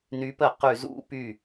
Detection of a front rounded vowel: present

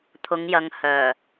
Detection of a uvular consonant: absent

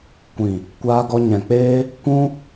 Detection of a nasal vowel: present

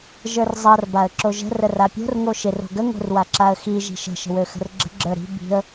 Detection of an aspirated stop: absent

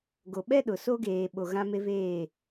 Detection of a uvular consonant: absent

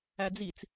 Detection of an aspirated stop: absent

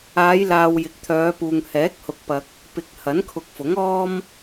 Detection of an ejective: absent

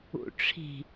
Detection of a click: absent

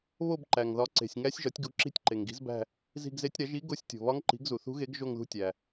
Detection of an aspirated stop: absent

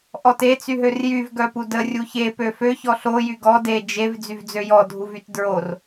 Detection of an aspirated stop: absent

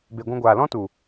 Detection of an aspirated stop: absent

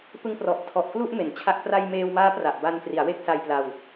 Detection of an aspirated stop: present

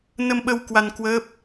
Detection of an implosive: present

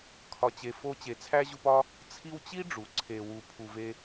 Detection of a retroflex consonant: present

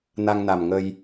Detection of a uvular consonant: absent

